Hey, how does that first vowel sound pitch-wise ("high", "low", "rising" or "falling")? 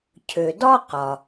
low